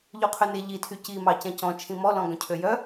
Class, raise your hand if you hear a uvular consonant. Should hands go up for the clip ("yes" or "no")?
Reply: yes